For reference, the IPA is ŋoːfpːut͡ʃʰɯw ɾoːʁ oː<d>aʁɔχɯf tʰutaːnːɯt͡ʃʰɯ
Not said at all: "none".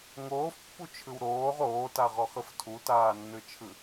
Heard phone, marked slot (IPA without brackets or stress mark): t